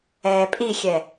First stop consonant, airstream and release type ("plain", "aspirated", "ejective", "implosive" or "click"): ejective